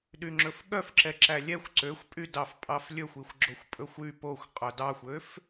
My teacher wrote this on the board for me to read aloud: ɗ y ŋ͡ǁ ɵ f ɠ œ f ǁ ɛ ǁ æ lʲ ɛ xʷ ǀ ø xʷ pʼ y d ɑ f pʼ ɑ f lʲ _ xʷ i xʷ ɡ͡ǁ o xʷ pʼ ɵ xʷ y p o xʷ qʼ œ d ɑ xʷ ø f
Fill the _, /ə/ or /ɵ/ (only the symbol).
ɵ